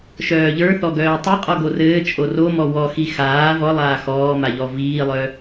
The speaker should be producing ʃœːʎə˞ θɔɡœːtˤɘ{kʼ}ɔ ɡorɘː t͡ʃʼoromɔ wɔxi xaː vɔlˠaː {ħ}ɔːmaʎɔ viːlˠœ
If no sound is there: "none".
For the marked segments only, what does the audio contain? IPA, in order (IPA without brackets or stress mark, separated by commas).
qʼ, x